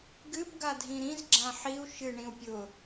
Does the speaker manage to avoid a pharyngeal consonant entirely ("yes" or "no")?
no